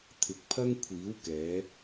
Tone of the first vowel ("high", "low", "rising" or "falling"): low